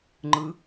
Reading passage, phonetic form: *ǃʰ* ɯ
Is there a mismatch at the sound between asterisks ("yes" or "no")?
yes